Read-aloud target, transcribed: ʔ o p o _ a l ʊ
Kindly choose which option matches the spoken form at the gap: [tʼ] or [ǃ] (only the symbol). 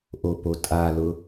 tʼ